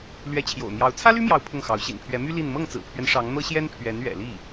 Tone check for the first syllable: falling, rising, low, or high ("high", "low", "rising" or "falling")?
rising